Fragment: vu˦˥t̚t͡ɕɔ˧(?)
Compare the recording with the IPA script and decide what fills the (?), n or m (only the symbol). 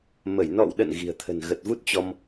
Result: m